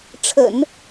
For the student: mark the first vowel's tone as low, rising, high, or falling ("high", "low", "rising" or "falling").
low